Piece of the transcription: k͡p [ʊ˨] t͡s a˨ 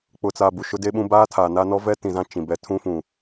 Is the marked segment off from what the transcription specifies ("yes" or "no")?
no